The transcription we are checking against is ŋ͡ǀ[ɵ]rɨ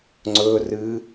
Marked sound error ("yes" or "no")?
no